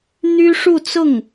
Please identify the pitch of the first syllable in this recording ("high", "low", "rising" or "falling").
high